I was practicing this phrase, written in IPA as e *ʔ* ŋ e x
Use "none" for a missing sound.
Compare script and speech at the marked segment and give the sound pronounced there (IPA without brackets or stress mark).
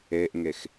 ʔ